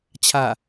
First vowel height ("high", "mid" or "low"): low